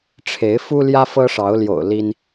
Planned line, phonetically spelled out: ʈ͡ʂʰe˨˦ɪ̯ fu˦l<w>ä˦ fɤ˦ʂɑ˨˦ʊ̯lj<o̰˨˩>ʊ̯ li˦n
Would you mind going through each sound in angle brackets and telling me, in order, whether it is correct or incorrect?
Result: incorrect: j, correct

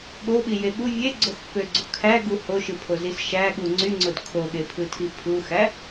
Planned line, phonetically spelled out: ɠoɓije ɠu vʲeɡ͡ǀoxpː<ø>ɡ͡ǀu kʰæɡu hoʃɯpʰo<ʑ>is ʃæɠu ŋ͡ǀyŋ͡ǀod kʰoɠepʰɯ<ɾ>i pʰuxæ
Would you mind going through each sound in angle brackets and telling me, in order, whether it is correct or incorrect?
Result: correct, incorrect: z, incorrect: tʰ

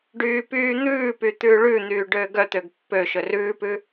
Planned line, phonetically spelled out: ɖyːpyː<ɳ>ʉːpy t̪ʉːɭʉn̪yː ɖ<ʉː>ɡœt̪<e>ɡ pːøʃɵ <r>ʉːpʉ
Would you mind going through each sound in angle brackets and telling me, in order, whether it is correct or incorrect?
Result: incorrect: n̪, incorrect: øː, incorrect: ø, correct

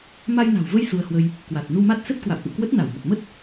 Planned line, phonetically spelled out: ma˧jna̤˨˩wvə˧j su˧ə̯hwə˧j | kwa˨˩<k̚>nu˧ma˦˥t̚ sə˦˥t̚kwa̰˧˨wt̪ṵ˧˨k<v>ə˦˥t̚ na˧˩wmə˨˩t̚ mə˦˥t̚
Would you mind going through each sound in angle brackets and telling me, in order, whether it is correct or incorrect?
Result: incorrect: t̚, incorrect: w

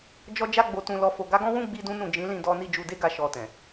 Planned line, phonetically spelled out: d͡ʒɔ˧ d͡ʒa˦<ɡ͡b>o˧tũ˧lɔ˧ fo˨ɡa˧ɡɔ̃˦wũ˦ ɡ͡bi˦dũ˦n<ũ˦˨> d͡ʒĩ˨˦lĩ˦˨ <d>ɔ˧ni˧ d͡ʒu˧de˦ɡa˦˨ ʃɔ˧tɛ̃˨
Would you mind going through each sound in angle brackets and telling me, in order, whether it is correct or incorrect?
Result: correct, correct, correct

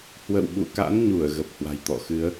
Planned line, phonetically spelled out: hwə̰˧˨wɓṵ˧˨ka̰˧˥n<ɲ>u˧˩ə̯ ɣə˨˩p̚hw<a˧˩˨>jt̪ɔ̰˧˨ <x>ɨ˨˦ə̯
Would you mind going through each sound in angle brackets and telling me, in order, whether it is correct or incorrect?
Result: correct, incorrect: a̤˨˩, correct

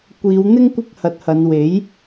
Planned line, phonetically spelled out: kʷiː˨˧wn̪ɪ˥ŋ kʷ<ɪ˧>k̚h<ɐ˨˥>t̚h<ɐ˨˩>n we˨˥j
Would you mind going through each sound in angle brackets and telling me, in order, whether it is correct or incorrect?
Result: incorrect: ɪ˥, correct, incorrect: ɐ˨˧

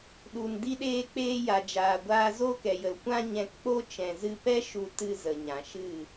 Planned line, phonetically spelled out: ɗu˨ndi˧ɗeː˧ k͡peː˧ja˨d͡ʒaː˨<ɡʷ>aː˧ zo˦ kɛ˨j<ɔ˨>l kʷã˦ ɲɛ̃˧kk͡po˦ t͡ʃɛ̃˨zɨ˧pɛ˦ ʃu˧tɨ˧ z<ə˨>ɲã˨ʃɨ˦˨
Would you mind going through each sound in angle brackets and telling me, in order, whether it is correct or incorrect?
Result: correct, incorrect: ə˨, correct

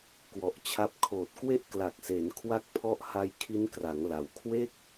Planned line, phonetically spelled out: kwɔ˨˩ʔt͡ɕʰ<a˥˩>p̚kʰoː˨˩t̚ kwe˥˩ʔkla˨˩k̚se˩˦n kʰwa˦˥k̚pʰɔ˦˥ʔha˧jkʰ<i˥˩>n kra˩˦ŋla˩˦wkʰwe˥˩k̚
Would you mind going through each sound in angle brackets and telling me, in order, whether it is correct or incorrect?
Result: incorrect: a˦˥, incorrect: i˦˥

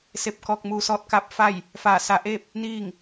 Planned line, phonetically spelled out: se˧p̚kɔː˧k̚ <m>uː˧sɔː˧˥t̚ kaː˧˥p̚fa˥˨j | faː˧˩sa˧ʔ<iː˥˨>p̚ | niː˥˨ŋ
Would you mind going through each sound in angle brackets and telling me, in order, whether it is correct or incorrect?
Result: correct, incorrect: eː˥˨

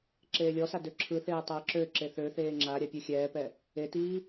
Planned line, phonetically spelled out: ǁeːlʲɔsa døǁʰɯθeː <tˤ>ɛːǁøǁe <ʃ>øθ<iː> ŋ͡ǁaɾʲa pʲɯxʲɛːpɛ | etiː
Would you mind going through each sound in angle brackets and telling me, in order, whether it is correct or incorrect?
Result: correct, incorrect: θ, incorrect: eː

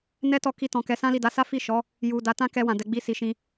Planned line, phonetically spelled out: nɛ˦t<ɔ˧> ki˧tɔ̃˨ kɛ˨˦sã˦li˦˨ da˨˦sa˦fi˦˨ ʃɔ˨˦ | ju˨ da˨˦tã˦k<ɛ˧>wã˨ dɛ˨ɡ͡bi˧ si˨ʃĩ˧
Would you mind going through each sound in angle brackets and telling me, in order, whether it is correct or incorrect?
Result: correct, correct

